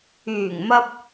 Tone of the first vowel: low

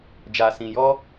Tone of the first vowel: low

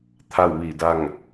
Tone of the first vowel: falling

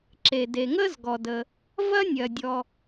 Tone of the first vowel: low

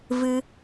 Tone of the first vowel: high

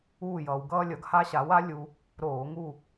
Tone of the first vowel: falling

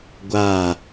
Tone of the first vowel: falling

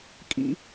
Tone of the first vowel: high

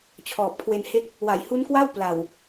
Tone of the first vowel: low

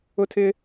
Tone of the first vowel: high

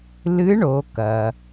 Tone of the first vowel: rising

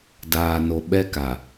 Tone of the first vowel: low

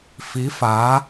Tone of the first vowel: rising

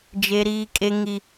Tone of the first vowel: high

